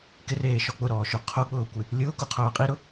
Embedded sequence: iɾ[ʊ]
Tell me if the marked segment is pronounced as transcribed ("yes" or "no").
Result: yes